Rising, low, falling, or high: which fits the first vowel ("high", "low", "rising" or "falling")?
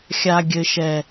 low